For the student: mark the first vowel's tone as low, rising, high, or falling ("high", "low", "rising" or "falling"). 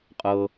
low